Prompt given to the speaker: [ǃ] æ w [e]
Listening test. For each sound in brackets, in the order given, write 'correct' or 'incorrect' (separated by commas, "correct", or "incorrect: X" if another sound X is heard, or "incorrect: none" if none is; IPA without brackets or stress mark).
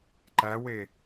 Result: correct, correct